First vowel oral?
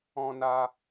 no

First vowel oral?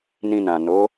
no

